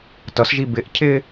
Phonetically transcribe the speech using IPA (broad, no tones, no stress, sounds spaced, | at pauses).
t ʌ s ʒ i b ɪ ʔ cʰ ɪː